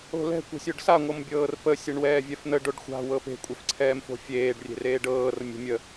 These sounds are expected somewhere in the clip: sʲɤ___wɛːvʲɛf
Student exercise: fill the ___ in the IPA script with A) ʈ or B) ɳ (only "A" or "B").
B